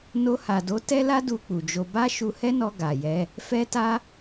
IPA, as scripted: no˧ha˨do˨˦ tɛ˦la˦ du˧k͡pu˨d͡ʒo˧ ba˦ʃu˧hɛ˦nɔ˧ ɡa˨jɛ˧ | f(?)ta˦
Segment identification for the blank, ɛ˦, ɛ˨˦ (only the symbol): ɛ˦